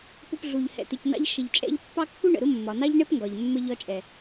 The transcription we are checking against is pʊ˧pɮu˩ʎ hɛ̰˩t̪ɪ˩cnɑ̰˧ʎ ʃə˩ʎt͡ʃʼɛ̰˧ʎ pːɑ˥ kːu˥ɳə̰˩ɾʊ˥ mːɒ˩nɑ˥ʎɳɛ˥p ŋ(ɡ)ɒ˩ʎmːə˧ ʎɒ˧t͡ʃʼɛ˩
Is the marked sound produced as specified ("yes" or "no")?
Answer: yes